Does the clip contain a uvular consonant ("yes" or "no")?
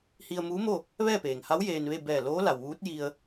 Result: no